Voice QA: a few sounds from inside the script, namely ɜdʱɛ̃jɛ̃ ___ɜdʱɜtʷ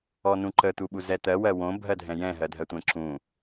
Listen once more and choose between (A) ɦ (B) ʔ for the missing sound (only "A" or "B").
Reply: A